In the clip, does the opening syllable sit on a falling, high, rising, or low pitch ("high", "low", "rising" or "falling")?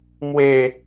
low